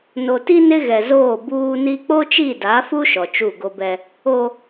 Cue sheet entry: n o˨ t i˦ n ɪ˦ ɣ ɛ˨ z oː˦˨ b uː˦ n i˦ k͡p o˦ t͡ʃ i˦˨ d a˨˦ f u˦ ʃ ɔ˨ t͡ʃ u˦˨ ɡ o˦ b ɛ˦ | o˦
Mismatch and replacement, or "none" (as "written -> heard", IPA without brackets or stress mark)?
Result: none